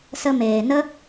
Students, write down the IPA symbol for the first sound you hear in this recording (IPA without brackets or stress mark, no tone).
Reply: s